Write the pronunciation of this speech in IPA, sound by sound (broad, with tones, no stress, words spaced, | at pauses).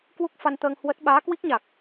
kwu˦˥k̚fa˧nt̪əː˧ŋ hwə˦˥t̚ ɓaː˨˦kwi˦˥k̚ɲa˨˩k̚